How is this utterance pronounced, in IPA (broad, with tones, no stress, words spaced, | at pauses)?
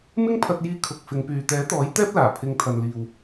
mɪ˥ŋpʰɐ˧t̚jiː˧ kʰʊ˨k̚ fɪ˨˧ŋpyː˨ t̪ɛː˨˥t̪ɔː˨˥j t̪ɛː˥p̚laː˨˩ pʰɪ˨ŋt̪ʰɐ˨nliː˨w